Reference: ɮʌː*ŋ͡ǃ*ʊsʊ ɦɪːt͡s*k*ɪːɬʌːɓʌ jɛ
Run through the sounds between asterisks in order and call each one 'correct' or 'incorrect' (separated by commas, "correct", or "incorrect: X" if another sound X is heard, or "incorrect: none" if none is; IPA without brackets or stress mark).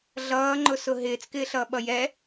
correct, correct